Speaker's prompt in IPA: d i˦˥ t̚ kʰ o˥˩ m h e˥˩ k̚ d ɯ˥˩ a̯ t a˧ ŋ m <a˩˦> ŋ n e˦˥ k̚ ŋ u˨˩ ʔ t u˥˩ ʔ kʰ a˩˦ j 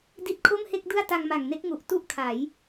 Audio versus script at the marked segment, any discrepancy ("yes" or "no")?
yes